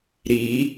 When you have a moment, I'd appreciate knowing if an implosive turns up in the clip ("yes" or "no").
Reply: no